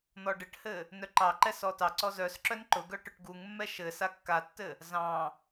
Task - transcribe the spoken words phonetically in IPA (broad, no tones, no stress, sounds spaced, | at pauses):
n̪ ɔ ɖ ɘ ʈ h ɘ | n œ ǃ ɑ ǃ ɛ s ɔ t ɑ ǀ ɔ z œ s ǁ œ n ǃ ʊ ɡ œ ʈ ʊ ʈ ɡ u ŋ mː ɛ ʃ ɘ s a kː a tː ɘ | z ɑ̃